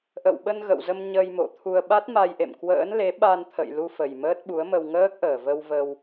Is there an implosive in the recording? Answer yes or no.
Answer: yes